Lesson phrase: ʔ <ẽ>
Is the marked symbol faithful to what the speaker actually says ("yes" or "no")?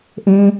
yes